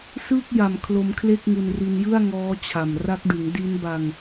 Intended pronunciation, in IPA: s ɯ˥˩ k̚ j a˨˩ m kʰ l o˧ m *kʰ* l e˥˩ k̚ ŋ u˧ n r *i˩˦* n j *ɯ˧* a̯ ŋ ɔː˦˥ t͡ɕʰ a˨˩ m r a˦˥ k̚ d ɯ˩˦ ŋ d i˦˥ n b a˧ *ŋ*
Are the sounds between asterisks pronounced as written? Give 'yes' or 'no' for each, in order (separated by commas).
yes, no, no, yes